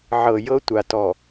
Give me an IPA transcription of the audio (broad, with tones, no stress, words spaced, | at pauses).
ʕɤ˨jɤ˦ tʷa˨tɔ˨